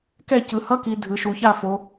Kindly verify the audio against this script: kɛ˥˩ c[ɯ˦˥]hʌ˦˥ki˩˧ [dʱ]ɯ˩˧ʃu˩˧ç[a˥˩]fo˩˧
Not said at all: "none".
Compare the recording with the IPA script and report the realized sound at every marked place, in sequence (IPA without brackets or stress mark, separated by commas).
ɯ˩˧, dʱ, a˥˩